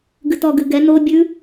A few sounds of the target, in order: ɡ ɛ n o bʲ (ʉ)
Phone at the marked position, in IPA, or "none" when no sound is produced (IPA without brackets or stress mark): ʉ